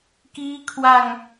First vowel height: high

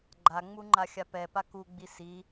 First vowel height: low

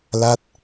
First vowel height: low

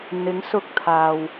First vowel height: high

